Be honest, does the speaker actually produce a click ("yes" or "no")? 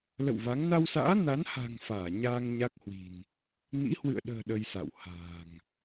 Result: no